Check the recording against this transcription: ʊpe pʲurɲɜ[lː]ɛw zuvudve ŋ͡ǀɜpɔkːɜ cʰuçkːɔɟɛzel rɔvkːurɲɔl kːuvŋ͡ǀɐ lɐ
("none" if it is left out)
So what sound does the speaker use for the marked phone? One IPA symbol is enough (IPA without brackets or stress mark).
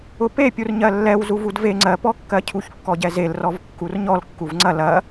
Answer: lː